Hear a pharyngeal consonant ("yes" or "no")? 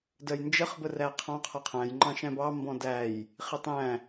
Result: no